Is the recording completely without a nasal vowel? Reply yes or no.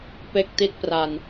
yes